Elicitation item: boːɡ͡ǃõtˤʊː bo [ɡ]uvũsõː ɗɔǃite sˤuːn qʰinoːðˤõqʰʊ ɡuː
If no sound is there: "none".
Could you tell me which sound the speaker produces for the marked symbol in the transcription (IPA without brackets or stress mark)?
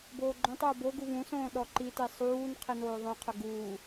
ɡ